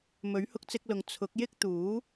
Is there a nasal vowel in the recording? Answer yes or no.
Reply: no